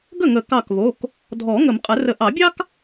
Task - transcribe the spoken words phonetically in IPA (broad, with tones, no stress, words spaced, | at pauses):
ɡə˥˩ŋə˨˩˦ kɑ˧˩kβo˩˧˩k | dʱɔ˨˩˦ ŋə˨˩˦mqʼə˨˩˦rə˨˦ ʔɑ˨˩˦bʲɑ˥k